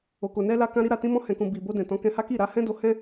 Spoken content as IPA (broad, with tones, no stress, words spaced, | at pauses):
o˨ko˨ nɛ˧ la˧kã˧ɾi˧ɾa˨ tĩ˧mɔ̃˧ hɛ̃˨kũ˨ bi˨bo˧dɛ̃˨ tɔ̃˨˦kɛ̃˧ha˦ki˦˨ ɾa˨˦hɛ̃˦do˧hɛ̃˦